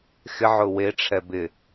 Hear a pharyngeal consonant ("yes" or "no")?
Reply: yes